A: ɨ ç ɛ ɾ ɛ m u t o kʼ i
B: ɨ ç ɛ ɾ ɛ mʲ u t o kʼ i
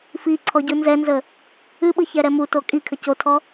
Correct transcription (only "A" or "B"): A